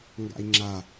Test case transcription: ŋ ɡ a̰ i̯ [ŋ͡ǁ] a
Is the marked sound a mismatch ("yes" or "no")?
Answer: no